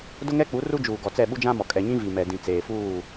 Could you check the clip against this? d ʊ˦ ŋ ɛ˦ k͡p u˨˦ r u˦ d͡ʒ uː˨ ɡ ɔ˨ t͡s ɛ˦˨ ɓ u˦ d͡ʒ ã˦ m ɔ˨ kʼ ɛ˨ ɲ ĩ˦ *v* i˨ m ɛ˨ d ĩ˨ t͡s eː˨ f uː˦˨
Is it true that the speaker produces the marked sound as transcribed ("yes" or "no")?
yes